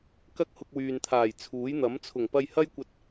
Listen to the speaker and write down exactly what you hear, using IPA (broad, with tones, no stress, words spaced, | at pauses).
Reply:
kɐ˥k̚ hʊ˧k̚wyː˨nt̪ʰaː˨˩j t͡sʰuː˨˥jn̪ɐ˨˥m t͡sʰʊ˨˩ŋpɐ˧j hɐ˥jkʷɐ˧t̚